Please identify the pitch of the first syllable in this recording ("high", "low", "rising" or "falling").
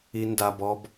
high